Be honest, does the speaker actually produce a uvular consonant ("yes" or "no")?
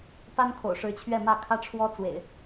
no